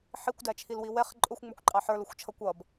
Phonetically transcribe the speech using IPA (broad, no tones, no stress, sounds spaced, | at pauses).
ħ i kʷ d æ t͡ʃʰ i l w i w ɛ χ ǃʼ ʊ xʷ ŋ͡m ə˞ kʷ ǃʼ ɑ ħ ə˞ l ʊ xʷ t͡ʃʰ ʌ kʷ ʌ b